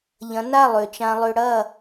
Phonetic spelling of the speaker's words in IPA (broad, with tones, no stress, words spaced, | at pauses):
ʎɐ̃˨˦na˦˨ lˠø˨t͡ʃã˧lˠø˧ ɽɐ˦˨